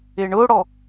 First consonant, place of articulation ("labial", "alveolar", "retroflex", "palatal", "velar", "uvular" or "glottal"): retroflex